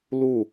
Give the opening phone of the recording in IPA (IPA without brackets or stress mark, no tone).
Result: l